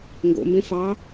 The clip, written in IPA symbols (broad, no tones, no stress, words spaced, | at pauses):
ŋɡo̰mbẽ fɑ